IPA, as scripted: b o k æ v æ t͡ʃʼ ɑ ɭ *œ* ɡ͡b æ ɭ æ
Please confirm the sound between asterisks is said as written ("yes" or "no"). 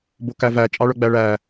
yes